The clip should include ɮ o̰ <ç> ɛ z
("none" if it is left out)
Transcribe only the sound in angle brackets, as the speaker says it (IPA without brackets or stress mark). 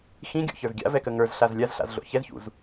ç